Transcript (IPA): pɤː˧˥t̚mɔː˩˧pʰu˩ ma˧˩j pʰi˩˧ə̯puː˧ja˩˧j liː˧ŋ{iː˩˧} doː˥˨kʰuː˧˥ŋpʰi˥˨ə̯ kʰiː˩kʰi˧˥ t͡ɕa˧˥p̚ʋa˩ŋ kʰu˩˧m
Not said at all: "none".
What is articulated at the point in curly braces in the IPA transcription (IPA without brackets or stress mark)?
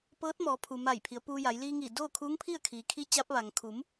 iː˧˩